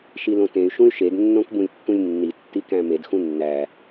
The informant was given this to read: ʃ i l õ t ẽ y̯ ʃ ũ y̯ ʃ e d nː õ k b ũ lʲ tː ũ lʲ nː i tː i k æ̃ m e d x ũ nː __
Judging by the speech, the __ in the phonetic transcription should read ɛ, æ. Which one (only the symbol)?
æ